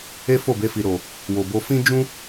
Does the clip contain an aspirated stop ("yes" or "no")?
no